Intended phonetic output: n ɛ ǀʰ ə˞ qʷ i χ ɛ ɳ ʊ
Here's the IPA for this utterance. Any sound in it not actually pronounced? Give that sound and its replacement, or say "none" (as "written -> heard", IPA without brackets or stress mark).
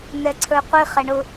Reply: none